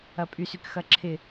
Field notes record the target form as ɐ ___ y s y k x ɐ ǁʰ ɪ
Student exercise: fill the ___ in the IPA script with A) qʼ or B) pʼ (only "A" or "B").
B